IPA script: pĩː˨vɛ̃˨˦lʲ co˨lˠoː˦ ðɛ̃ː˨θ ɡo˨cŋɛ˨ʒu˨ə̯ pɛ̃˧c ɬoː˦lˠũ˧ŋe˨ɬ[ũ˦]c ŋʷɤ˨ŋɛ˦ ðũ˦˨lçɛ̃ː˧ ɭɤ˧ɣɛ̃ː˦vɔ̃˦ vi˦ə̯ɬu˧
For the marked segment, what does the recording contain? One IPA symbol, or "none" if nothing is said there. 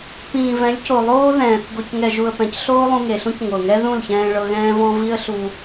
ũ˦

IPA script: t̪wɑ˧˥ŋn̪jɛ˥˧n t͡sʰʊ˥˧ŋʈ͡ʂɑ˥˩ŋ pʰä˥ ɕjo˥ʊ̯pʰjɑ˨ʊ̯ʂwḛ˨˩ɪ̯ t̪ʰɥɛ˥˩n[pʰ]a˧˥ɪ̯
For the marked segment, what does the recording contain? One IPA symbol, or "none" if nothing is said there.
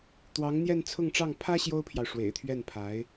pʰ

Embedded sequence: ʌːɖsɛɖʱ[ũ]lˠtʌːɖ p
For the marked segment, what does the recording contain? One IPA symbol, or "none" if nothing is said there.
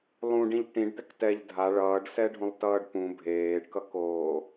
ũ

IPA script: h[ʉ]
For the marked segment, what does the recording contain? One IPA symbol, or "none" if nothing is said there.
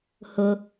ʊ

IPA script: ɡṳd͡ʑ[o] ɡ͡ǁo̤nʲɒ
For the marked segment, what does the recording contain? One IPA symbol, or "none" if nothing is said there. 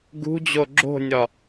o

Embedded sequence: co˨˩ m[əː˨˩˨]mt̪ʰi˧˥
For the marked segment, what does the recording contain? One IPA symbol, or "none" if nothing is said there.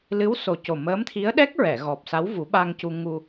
əː˧˥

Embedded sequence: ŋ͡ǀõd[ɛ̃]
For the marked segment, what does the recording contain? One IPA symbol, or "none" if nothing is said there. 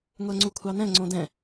ɛ̃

